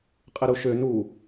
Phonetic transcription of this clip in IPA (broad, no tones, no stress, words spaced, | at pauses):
qʼɪɾuʃø nu